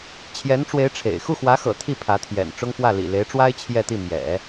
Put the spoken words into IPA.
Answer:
t͡ɕʰ j ɛ˧˥ n ʈ͡ʂ w e˧˥ ɪ̯ ʈ͡ʂʰ ḛ˨˩ ɪ̯ x u˥˩ x w ä˧˥ x ɤ̰˨˩ t̪ʰ i˥˩ pʰ ä˧˥ t̪ʰ j ɛ̰˨˩ n ʈ͡ʂ ʊ˥ ŋ f w ä˥˩ l ḭ˨˩ l e˧˥ ɪ̯ ʈ͡ʂ w a˥ ɪ̯ t͡ɕʰ j ɛ˥˧ t̪ i˥˩ m j ɛ̰˨˩˦

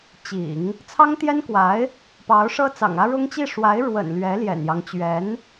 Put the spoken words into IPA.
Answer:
t͡ɕ ḭ˨˩˦ ŋ | t͡sʰ ɑ˥ ŋ t̪ j ɛ˥ n k w a˧˥ ɪ̯ | p ɑ˧˥ ʊ̯ ʂ ɤ˥ t͡s ɑ̰˨˩ ŋ ä˥ ɻ ʊ˥ ŋ t͡ɕ i˥˩ ʂ w a˧˥ ɪ̯ ɻ w ə̰˨˩ n l ɥ ɛ˧˥ l j ɛ̰˨˩ n j ɑ˦ ŋ t͡ɕ ɥ ɛ˧˥ n

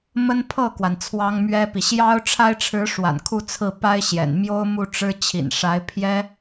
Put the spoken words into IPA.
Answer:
m ə˥ n pʰ ɤ˥˩ k w a˩ n t͡sʰ w ɑ˥ ŋ m ɥ ɛ˥ p i˨ ɕ j ɑ˥ ʊ̯ ʈ͡ʂʰ a˥ ɪ̯ ʈ͡ʂʰ ɻ̩˧˥ ʂ w a̰˨˩ n kʰ u˥˧ t͡sʰ ɹ̩˥˩ p a˥ ɪ̯ ɕ j ɛ̰˨˩ n m j o˥ ʊ̯ m u˥˩ ʈ͡ʂ ɻ̩˥ t͡ɕʰ ḭ˨˩ n ʂ a˧˥ ɪ̯ pʰ j ɛ˥

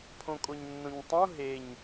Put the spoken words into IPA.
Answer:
pʰ õ kʼ o ɲ nː õ ɲ tˤ õ ɦ e ɲ

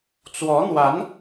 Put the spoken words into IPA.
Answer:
t͡s w ɔ˧˥ n̪ w a˧˥ n

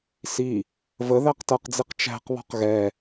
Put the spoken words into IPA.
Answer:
s i | v ə ð æ q t ʌ q d͡z i q t͡ʃ æ̤ q β ɔ̤ q ɣ ɛ

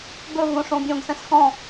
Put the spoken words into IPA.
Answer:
b ɵ v õ ʂ õ bʲ õ ɡ s ɛ̃ s x ɔ̃

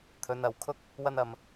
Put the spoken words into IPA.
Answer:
t̪ʰ ɵ˧ n ɐ˧ w kʰ ʊ˥ k̚ | w ɐ˥ n ɐ˥ m

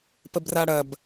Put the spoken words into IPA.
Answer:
p ə b r a ɽ ɐ b

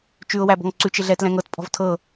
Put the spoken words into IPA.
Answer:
t͡ʃ ʉ ʊ̯ w æ b ɔ̤ ŋ ǀ ʉ t͡ʃ ɪ ɮ ɛ t l ɛ̃ ŋ ɤ t pʼ ɔ̤ v tʰ ɤ

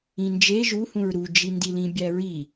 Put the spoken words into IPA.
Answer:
ĩ n d͡ʒ e ʒ u h ũ ɹ ɾ u d͡ʒ i n d i l ĩ bʲ æ ɹ i

